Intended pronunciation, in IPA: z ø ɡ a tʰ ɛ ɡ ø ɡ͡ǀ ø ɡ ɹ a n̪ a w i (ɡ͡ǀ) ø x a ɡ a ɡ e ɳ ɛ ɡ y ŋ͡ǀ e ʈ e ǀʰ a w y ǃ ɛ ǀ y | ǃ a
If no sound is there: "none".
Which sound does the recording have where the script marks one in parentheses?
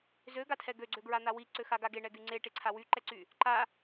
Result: ǀ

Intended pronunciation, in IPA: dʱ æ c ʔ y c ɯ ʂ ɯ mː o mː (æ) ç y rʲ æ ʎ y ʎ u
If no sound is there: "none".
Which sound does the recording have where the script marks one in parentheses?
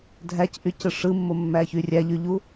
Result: æ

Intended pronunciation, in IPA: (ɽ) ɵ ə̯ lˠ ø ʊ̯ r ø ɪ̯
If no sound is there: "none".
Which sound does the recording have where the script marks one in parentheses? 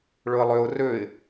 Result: ɭ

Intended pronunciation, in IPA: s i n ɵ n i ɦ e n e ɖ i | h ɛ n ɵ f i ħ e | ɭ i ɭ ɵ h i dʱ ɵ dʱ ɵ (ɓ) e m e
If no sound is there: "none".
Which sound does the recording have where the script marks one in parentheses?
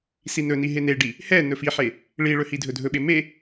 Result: ɓ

